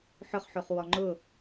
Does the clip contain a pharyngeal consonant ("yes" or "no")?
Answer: yes